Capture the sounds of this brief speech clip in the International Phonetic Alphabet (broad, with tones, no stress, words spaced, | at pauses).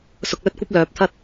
sʊ˧k̚lɵ˥t̚kʷɐ˥p̚ lœː˨p̚t̪ʰɐ˥t̚